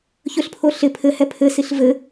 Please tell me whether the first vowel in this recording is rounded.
yes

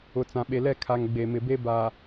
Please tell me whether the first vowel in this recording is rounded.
yes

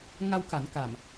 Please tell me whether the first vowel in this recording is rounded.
no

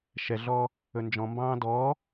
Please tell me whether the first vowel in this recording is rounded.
no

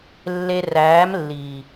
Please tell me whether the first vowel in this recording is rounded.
no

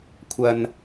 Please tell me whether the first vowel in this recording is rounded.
no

